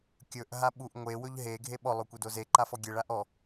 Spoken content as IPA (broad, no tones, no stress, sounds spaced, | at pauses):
kʲ ɵ ʔ ɦ a ɓ u ʔ ŋʷ e w ɵ ʎ ɦ e ɡʱ e ɓ ɔ lˠ ɵ kʷ e d o z e ǃ a f ɔ ɡʲ e ɭ a ʔ ɔ